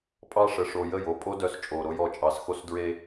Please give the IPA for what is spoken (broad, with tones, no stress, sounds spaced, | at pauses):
pʼ ɑ˦ ʂ ə˨ ʂ o˨ j ə˦˨ j o˦˨ pʼ o˦ d œ˦ s t͡ʃʼ o˨ ɾ o˦ j ɔ˨ t͡ʃʼ ɑ˨ s x o˦ s d ɹ e˦